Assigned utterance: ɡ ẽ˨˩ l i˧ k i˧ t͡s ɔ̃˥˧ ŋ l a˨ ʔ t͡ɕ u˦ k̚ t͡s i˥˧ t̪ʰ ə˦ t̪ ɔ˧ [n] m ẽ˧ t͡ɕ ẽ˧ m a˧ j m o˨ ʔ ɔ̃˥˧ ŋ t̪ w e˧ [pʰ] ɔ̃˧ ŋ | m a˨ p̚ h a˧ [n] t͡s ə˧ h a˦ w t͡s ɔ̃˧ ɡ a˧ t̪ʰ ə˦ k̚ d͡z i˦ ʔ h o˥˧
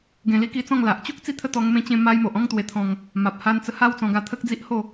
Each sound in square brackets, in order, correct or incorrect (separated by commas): incorrect, incorrect, correct